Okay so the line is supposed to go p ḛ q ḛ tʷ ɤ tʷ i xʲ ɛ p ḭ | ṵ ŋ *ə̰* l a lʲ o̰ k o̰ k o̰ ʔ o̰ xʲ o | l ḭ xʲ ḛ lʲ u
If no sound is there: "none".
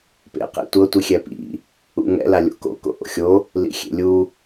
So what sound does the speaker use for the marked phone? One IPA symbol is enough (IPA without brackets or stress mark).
ɛ̰